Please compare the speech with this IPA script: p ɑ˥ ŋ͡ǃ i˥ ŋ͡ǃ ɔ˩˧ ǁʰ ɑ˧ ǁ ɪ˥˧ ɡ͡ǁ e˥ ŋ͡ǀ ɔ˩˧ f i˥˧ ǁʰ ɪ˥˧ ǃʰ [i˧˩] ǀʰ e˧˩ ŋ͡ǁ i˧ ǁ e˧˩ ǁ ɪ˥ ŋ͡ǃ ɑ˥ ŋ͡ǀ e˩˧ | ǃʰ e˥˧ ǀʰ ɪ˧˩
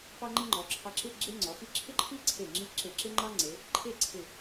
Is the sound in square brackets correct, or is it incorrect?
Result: incorrect